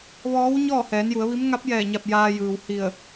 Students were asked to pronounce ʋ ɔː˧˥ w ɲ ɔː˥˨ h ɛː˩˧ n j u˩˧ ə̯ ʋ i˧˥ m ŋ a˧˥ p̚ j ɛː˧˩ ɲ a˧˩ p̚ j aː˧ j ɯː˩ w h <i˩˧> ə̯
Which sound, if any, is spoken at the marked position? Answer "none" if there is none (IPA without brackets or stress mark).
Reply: i˧˩